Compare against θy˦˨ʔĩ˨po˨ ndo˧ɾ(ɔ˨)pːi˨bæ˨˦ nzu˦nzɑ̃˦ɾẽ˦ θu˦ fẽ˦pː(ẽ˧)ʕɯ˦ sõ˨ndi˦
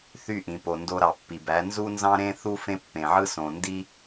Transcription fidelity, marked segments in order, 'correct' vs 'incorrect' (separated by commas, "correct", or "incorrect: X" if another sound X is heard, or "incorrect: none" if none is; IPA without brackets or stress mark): incorrect: ɑ˨, incorrect: ẽ˨